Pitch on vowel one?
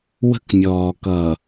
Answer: high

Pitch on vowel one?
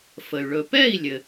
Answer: low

